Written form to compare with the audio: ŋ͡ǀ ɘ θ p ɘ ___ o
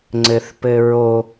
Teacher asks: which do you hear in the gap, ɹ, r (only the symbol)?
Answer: ɹ